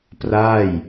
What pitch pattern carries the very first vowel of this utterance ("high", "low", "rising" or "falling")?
falling